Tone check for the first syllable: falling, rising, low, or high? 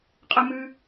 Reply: high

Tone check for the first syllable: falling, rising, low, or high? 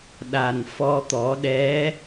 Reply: low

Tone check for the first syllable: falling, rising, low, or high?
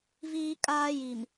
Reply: high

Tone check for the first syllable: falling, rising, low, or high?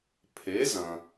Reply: rising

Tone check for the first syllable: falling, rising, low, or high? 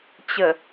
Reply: low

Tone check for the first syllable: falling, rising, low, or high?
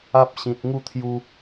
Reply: high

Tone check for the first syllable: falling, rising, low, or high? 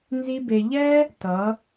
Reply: high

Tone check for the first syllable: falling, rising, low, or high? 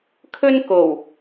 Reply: high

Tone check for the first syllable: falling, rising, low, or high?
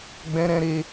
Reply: high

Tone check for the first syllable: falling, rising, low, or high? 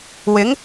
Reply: rising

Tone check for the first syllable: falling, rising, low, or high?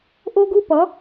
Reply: high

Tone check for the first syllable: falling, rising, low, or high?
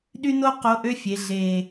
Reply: high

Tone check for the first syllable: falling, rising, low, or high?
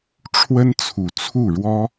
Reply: high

